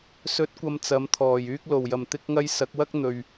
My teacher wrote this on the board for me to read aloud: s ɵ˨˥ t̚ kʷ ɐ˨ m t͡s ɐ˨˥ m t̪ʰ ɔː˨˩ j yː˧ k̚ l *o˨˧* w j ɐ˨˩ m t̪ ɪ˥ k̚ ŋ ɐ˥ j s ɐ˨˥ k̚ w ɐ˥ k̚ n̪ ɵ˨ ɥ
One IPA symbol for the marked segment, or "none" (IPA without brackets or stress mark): o˨˩